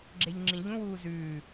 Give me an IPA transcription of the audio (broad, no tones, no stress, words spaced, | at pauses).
ɡ͡ǁeʎŋ͡ǁĩʎũ wuːzʉː